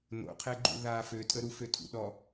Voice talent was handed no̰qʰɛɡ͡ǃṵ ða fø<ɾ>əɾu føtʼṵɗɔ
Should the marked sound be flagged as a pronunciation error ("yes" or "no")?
yes